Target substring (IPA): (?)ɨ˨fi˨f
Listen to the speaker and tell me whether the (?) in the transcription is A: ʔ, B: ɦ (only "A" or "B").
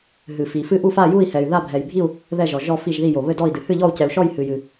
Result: B